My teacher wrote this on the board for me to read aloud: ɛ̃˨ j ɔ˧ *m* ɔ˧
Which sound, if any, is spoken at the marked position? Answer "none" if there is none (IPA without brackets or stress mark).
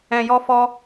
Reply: f